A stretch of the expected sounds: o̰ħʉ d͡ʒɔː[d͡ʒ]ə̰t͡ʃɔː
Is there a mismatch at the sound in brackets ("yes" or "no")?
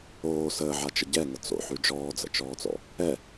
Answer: yes